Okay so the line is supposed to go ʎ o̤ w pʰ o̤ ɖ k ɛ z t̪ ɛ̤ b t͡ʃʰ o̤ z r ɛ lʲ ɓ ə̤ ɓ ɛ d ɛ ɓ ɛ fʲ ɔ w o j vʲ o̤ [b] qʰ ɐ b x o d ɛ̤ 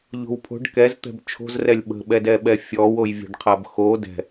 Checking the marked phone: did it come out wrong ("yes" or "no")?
yes